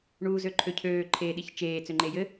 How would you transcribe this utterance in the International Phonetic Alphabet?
ɳuːzøǃʰøcʰøː ǃʰeːɗiçt͡ʃeː t͡søŋ͡ǃejɘ

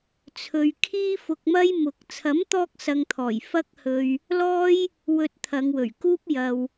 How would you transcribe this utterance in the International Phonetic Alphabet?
t͡sʰɵ˨ɥ kʰiː˥fʊ˧k̚mɐ˥j mʊ˨˥k̚ t͡sʰɐ˨˥mt̪ɔː˧k̚sɐ˨ŋt̪ʰɔː˨˩j fɐ˥k̚ hɵ˧ɥ | lɔː˥j | wɵ˧t̚t̪ʰɐ˨˧ŋwɵ˨˩ɥkuː˥p̚ jɐ˧w

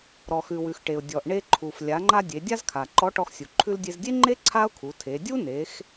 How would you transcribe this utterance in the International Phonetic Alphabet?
ɾɔ˩xʉ˩wʉ˩x ʈe˩ʊ̯ dʲɔ˩ʔɳe˧ǃʰu˩f lʲa˩˧ŋ͡ǃa˧ dʲe˩˧dʲa˥zkʰa˩ ǃɔ˧˥ʈɔ˧xsʲu˩ ǃʰʉ˧ldʲe˧zdʲe˥ŋ͡ǃe˥ ǀʰa˥ʊ̯kʰu˩˧tʰe˩˧ dʲu˥ne˩˧x

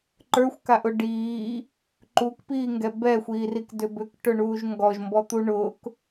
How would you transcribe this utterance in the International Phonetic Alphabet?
ǃə˞xʷkaʔʊ ɖiː | ǃukpiːŋɡɛ bɛxʷiːrikdʏ bʏkʈʊɳuːʒ ŋɡɔʒmbɔt̪u ɳʊk

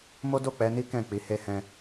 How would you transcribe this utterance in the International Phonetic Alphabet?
mo˦do˦˨k͡pɛ˨˦ni˦ kɛ̃˦˨k͡pi˨˦he˦ hɛ̃˧

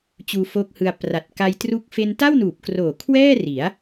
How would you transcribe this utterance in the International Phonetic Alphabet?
t͡ɕuː˧foː˦˥k̚hɯ˧a̯ pra˨˩t̚ka˧jtru˦˥k̚ fe˧nta˥˩wnuː˨˩p̚kroː˨˩ kʰwɛː˥˩ri˩˦a̯

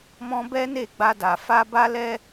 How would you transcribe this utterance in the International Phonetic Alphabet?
mɔ̃˦ bɛ˦ne˦˨ ɡ͡ba˧da˨ fa˧ ba˦lɛ˦

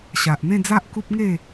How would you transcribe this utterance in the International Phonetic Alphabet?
ɕa˨ʔn̪ẽ˥˧d͡za˦ʔ ku˦p̚ŋe˥˧

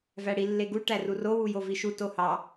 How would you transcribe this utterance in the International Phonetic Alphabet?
væɽi lːeɡu ʈærurowu joviʃu tohɑ

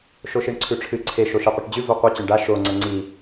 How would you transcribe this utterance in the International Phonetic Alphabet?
ʃoʃiɳǀʰʉʈ͡ʂʰɨ ǀʰe ʃoʃiqʷɨʈd͡ʑʉ voqʷi t͡ɕɵɳɖa ʃo ŋ͡ǀɐŋ͡ǀi

